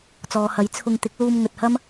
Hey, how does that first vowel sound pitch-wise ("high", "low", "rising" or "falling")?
low